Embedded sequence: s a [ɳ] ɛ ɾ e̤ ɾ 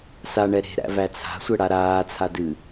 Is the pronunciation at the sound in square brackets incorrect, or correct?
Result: correct